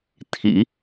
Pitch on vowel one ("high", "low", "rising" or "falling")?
low